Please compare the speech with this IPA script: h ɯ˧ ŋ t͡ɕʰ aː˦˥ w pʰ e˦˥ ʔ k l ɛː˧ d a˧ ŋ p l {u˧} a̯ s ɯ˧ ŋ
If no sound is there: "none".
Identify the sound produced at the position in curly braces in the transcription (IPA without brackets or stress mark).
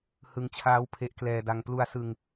u˧